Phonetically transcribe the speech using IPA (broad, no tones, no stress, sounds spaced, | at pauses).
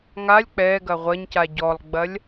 ŋ a lʲ k͡p ɛ ɡ ɐ ʁʷ ɐ ɲ c a ɟ ɔ lˠ ɡ͡b ɐ lʲ